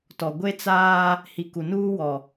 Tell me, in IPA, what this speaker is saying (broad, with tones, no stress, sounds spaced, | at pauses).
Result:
t ɔ˨ ɡʷ e˦ t͡s aː˦ | h i˨ k u˨ n uː˦ w ɔ˨